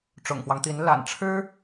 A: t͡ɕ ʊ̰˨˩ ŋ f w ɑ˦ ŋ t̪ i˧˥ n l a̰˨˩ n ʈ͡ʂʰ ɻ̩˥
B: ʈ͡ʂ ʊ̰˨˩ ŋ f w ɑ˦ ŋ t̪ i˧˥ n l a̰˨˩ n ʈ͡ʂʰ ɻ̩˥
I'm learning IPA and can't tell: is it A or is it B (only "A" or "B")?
B